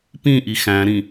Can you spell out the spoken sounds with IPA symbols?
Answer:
p ĩ ʔ i x æ̃ ɾ ĩ

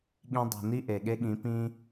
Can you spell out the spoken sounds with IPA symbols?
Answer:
ɠ ĩ˧ dˤ i̤˨ n i˦ ʔ e˨ ɠ e˦ ɠ ĩ˨˦ p ĩ˦

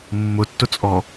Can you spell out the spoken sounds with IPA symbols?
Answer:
mː ʊ tː ʊ t͡sʼ ɔ

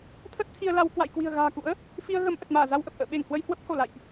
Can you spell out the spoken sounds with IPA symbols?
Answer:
t̪ʰ ə˦˥ t̚ t̪ʰ i˧ ə̯ l a˧ w k w a̰˧˨ j k w i̤˨˩ ə̯ ɣ a̤ː˨˩ k ṵ˧˥ ə̯ | f i˧ ə̯ ɣ ə˨˦ m ʔ ə˨˩ t̚ m aː˧˩ z a˧ w ʔ ə˨˩ p̚ ʔ ə̰ː˧˨ ɓ e˧˩ ŋ h w ə˧ j h w ə˦˥ p̚ h o˧˩ l a̰˧˨ j ʔ

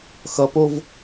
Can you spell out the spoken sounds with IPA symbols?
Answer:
x ʌ p o v

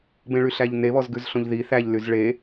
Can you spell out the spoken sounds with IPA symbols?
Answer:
b ẽ ɭ y ɬ æ ʎ n e β ɔ z ɡ ʉ z ɬ õ ʎ ð i θ æ ʎ l y z ɭ e

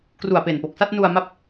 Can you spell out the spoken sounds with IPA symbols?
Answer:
k r u˨˩ a̯ p e˨˩ n p o˨˩ k̚ s a˥˩ t̚ n u˧ a̯ m a˦˥ p̚

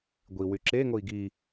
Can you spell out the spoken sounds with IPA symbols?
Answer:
ɡʷ i w y ǁ e ŋ o i̯ ɡ i

